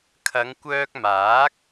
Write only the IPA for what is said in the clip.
kʰ ɐ˨˧ ŋ kʷ œː˧ k̚ m aː˨˥ k̚

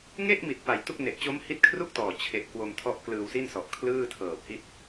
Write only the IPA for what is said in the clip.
ŋ e˥˩ ʔ m i˨˩ t̚ p a˨˩ j t u˥˩ k̚ n e˨˩ ʔ t͡ɕ o˦˥ m h i˦˥ t̚ kʰ r u˥˩ k̚ t ɔː˨˩ t͡ɕʰ e˨˩ ʔ k w o˧ m tʰ ɔ˦˥ ʔ k l ɯː˧ w s i˥˩ n s ɔ˨˩ ʔ kʰ l ɯː˥˩ tʰ ɤː˨˩ p̚ h i˥˩ t̚

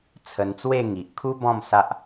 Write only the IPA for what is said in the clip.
t͡sʰ ə˧ n t͡s w e˥˧ ŋ i˨ ʔ kʰ u˦ b ɔ̃˥˧ m s a˦ ʔ

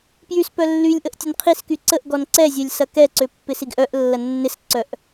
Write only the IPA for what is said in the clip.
p j y s p œ lː y lʲ ʔ ə ʔ tʲ ə n qʰ i s k y ǀ ə ʔ ɡ ɔ n ǀ ɛ zʲ œ lʲ s ɐ k ɛ ǀ ø pː ɪ s i ɡ ʔ œ ʔ lː ɐ nː ɪ s ǀ œ ʔ

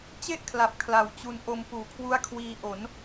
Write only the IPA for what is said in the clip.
t͡ɕ e˥˩ ʔ kʰ l a˨˩ p̚ kʰ l a˨˩ w t͡ɕ u˧ n ʔ o˧ m f uː˨˩ kʰ w u˦˥ a̯ kʰ w iː˧ ʔ o˩˦ n

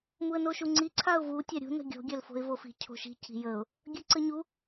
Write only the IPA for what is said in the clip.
m u ə̯ n o ʃ u ŋ͡ǀ i ǀʰ a ʊ̯ v u tʲ a ɾʲ ṳ n ə̤ ɡʲ o̤ ɡʲ œ l f o̤ ɪ̯ v o f i̤ cʰ o̤ ʃ i̤ c i̤ j ə ʊ̯ | ɡʲ œ ǀ ə ɲ u

